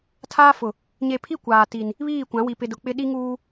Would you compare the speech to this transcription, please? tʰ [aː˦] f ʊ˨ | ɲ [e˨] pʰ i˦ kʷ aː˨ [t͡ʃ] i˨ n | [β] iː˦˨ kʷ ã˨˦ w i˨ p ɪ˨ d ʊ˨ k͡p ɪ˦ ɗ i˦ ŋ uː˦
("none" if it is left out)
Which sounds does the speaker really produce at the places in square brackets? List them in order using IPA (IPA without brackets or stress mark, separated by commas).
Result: aː˦, e˨, t, β